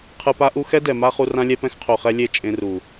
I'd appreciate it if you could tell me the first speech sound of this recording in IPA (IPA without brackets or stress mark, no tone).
qʰ